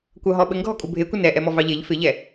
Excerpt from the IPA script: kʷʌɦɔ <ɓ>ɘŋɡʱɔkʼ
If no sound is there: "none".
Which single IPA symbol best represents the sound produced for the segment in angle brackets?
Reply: ɓ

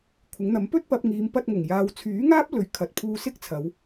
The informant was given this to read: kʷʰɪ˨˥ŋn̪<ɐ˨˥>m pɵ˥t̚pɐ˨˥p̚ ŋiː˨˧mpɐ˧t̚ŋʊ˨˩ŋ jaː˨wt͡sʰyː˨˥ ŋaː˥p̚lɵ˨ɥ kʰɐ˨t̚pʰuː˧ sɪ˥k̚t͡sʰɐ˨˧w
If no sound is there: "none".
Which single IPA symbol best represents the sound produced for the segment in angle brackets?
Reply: ɐ˨˥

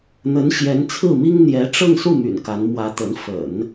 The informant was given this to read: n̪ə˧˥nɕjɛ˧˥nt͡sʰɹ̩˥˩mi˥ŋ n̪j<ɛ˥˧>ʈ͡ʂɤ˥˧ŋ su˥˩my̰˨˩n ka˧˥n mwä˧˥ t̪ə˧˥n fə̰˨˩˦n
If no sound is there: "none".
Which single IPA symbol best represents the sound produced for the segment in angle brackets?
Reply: ɛ˧˥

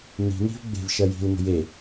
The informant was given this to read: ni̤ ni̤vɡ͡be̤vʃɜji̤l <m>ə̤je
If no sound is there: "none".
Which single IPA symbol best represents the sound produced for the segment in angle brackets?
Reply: m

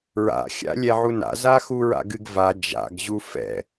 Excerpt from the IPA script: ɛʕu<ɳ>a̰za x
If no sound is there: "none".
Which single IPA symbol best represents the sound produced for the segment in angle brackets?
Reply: n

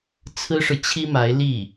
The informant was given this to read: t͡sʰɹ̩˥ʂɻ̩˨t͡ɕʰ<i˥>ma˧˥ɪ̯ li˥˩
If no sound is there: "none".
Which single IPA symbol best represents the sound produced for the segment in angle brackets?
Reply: i˥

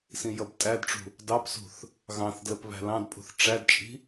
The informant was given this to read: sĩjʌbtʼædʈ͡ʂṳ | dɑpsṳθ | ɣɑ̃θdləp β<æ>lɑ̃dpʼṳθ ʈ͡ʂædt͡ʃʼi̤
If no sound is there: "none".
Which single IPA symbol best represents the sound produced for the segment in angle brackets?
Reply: æ̤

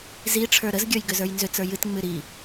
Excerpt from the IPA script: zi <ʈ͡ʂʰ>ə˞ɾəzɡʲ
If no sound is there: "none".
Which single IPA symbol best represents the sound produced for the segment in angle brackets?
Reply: ʈ͡ʂʰ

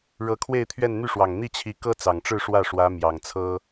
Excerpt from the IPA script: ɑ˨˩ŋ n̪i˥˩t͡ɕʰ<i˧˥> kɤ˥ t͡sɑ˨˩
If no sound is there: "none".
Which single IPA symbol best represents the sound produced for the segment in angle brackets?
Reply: i˧˥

